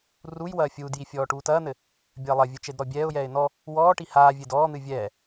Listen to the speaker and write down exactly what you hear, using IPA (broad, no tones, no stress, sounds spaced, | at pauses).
r u j w ɐː fʲ uː d j i fʲ ɔː ʈ uː t ɐː n̪ ɘ | bʲ ɐː lˠ ɐ vʲ ɨ t͡ʃ e d ɾ ɔ bʲ ɛː ʊ̯ j ɛː ɪ̯ n ɔ | w ɔː ʈ i h aː vʲ e d ɔː n̪ ɨ vʲ ɛː